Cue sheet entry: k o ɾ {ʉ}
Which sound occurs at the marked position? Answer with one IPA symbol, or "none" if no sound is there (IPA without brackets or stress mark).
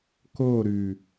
ʉ